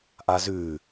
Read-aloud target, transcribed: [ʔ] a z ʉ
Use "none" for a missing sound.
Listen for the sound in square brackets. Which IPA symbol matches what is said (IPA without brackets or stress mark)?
ʔ